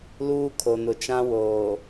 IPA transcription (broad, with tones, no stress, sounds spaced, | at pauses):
l uː˦ kʰ o˨ n ʊ˨ t͡ʃ ã˦ w oː˨